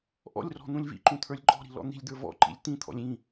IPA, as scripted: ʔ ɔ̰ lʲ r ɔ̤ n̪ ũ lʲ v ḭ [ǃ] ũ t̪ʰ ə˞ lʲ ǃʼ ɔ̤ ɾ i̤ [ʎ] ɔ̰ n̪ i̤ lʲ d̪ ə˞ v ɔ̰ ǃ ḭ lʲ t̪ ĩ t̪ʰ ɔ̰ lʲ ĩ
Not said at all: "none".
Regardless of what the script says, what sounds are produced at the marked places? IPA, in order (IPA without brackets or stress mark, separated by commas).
ǃ, l